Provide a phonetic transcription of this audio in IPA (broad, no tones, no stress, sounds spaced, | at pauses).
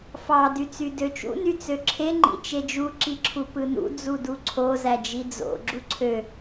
f ɑ d y t͡s y d ø t͡ʃ ṵ n y t͡s ø ǁʰ e ŋ͡ǃ ḭ t͡ʃ e d͡ʒ u ǁ i ǁʰ u p ɯ n ṵ d͡z u d u ǀʰ o z æ d͡ʒ i d͡z o̰ ɡ͡ǁ u ǀʰ ø